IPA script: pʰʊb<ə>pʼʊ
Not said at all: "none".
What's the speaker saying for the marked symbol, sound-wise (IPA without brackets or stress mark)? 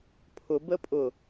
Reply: ə